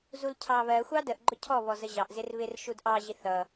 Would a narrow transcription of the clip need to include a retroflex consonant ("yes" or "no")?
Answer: no